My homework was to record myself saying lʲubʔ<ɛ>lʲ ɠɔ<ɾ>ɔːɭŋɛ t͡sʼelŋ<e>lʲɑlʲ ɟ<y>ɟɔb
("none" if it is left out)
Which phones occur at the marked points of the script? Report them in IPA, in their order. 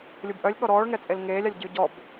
œ, ɾ, eː, y

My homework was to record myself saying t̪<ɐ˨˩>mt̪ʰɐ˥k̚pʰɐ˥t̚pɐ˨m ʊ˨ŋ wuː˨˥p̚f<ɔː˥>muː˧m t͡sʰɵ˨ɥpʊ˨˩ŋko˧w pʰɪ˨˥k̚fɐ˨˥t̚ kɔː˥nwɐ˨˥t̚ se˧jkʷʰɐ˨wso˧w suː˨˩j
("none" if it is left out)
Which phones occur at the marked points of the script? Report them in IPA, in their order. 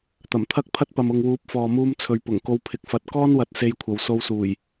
ɐ˨˩, ɔː˨

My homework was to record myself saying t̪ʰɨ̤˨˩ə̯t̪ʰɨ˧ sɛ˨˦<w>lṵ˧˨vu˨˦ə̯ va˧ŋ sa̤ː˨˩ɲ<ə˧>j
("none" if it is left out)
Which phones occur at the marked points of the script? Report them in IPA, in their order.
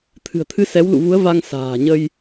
w, ə˧

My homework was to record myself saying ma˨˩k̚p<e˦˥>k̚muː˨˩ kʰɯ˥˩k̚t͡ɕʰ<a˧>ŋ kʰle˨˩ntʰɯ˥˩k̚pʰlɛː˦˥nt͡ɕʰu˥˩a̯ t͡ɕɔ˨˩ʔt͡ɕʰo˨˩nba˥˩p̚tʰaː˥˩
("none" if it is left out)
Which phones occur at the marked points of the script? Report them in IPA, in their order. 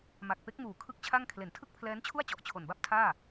e˦˥, a˥˩

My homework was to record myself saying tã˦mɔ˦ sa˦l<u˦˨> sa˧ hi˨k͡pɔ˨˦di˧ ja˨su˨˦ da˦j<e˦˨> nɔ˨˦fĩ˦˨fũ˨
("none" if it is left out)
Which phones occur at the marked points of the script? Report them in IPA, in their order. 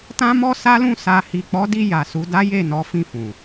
ũ˦˨, e˦˨

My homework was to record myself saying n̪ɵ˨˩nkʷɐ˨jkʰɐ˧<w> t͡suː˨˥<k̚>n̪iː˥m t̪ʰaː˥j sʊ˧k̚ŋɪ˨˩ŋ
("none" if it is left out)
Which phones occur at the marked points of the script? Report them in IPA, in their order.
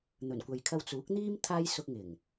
w, k̚

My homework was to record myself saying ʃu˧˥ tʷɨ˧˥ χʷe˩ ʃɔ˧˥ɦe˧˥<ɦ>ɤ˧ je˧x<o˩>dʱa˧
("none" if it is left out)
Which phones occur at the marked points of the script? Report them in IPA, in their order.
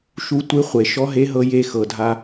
ɦ, ɤ˩

